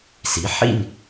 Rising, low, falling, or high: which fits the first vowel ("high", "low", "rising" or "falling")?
rising